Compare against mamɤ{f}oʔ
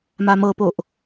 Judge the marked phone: incorrect: p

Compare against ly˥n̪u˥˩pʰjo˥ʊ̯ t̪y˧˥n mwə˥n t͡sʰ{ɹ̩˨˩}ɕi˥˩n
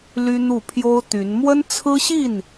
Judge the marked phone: incorrect: ɹ̩˥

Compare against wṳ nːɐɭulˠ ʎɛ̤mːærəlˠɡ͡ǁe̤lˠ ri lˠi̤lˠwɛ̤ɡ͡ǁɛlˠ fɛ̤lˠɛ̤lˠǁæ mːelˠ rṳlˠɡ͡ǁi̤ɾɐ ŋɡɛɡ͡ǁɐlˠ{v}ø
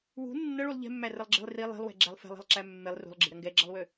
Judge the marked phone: incorrect: w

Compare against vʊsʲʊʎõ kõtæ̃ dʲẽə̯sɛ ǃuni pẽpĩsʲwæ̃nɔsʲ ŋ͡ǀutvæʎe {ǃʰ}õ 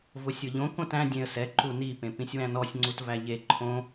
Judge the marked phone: correct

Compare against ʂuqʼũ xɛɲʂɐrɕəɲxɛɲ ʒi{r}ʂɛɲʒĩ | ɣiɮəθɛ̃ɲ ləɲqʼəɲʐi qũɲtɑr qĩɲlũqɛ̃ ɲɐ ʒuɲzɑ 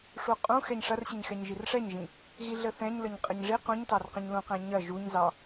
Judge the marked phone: correct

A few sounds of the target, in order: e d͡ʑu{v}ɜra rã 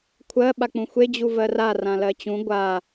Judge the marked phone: correct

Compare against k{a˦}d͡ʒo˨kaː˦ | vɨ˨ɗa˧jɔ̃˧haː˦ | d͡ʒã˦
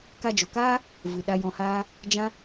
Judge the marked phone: incorrect: a˧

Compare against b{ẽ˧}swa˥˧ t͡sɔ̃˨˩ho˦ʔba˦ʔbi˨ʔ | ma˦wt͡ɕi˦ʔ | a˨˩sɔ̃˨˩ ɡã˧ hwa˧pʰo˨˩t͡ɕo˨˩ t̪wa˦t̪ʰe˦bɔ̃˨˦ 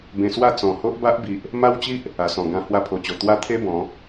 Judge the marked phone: correct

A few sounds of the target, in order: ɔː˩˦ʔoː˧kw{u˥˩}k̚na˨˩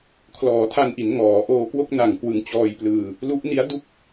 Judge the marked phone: incorrect: o˥˩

